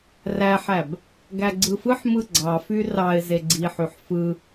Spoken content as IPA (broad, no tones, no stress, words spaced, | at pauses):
ræħæb | ɡæɡ͡ǀɯfɯħmɯ ɡ͡ǀɑfy rɑɪ̯ zeɡ͡ǀiħyħ fɯ